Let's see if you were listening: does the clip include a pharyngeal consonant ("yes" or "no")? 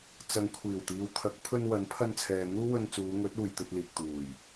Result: no